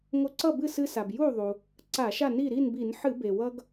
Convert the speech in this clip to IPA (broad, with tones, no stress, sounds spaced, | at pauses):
ŋ o˧ ǀ ʌ˥˨ b ɨ˥˨ s ɨ˧ s a˩ b j u˥˨ ðˤ u˩ | ǀ a˧˩˧ ʃ a˥˨ n i˥˨ ɾ i˥˨ n b i˧˩˧ n ħ ɨ˧˩˧ b e˩ w ʌ˧ ɡ